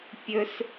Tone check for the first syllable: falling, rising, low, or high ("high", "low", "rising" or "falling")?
high